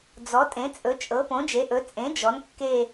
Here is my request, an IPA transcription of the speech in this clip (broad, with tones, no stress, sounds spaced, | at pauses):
d͡z ɔ˩˥ tʼ ẽ˩˥ t͡sʼ ɵ˩˥ t͡ʃʼ ɤ˩˥ p õ˩˥ d͡ʒ e˩˥ ʔ ɵ˩˥ t͡sʼ ẽ˩˥ d͡ʒ ɔ˩˥ n kː e˦˨